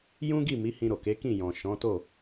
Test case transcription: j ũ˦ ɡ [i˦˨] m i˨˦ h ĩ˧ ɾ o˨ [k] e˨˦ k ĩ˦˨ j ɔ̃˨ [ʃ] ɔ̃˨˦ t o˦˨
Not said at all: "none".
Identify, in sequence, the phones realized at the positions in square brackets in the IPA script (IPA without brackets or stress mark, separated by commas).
i˦˨, k, ʃ